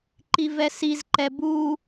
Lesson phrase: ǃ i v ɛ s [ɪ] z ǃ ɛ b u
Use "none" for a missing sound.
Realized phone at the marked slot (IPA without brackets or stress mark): i